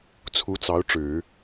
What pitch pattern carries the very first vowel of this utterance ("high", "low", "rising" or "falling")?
rising